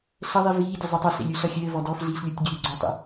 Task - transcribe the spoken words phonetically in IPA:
ɬ ə ðˤ i v iː dʲ ɘ zˤ ø tˤ ɘ ɬ ḛ lʲ u ɬ ʌ xʲ ɘː v ɔ d ɔ f ɮ iː ɬ lʲ u tʲ ɡʲ ø ɡ͡ǀ ɔ tˤ ḛ

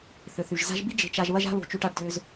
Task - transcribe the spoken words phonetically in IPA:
θ ʏ˩ θ y˩ ʒ z a̤˦ ʒ b i˥ d͡ʒ e̤˨ t͡ʃ a˨ ʒ β ɐ˦ ʒ a̤˦ β o̤˨ t͡ʃ y˨ ʈ a˨ ɖ d ʏː˨ z

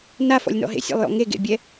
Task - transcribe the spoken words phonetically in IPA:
n a f ɔ̰ lʲ n ɔ̰ ɦ ḛ sʲ a̰ lˠ j ɔ̰ ŋ e ɡ ḛ bʲ ɛ

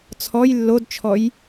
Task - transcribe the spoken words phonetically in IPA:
t͡sʰ ɔ j lː o d t͡ʃʰ ɔ j

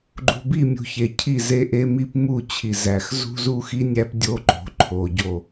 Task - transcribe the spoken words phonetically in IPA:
ɡ͡ǃ ṳ˨ b i˦˨ mʲ ṳ˨ ç e˨ cʰ i˦˨ z e˦ ʔ e˦ m i˦ p m u˦˨ t͡ɕʰ i˨ z æ˨ x z ṳ˦ z u˦ x i˦ nʲ æ˦ p dʲ o˦ ǃ o̤˨˦ ǃʰ o˨ ɟ o˦˨

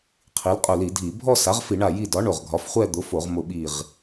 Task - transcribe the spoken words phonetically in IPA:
qʰ i˩˥ l qʼ ʊ˧˩ l i˧˩˧ dʱ i˧˩˧ bʱ ɔ˥˧ s a˩˥ ʁ f i˧˩˧ ɳ a˧˩ j i˧˩ d ɒ˩˥ ɳ o˧˩ ʁ ɡʱ ɒ˩˥ f χʷ ɛ˥˧ d̪ ʊ˩˥ f o˧˩˧ ʁ m ʊ˧˩ ɓ i˧˩ ʁ

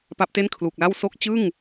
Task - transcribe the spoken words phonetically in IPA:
p a˦˥ p̚ t e˥˩ n kʰ l u˨˩ k̚ l a˥˩ w s o˦˥ k̚ t͡ɕ ɯ˥˩ ŋ

